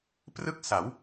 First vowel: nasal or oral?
oral